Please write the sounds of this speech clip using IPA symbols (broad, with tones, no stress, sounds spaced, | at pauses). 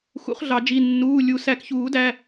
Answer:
x ṵ˨˩˦ χ ɮ ɑ˨˩˦ d͡ʒ i˩˧˩ nː uː˩˧˩ lʲ u˨˩˦ s æ˨˩˦ k ç uː˨˩˦ d æ˩˧˩